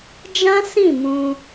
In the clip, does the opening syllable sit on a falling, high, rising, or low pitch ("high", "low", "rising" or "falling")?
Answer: high